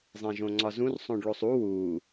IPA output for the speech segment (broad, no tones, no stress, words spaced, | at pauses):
zˤẽʒõŋ͡ǀɒzũr sˤõɖɭosˤu wu